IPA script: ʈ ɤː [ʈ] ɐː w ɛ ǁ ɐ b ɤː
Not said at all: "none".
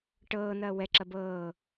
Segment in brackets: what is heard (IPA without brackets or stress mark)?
n